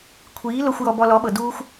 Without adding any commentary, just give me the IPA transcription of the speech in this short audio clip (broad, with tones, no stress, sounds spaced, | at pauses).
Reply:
kʷʰ iː˨˦ l o˧ xʷ j ɔ˧ b ɔ˧ l ɔ˨˦ ɓ ɤ˨ d uː˦ xʷ